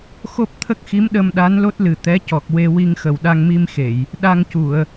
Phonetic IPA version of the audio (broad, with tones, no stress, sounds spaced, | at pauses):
x o˦˥ p̚ t̪ʰ ə˦˥ k̚ x i˧˥ m ɗ ə˧ m ɗ a˧˥ n l o˦˥ t̚ l ɨ˨˩ t̪ ɛ˧˥ c ɔ˨˩ k̚ w e˧ w i˧ ŋ x ə˨˩ w ɗ a˧ ŋ m i˧ m x e˨˩˨ j | ɗ a˧ ŋ c u˨˩˨ ə̯